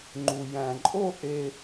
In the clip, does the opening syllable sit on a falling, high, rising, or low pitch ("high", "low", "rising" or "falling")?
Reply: low